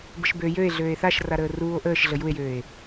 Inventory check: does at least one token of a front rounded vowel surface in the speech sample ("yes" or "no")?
yes